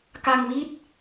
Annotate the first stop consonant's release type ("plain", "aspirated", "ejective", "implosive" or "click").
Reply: plain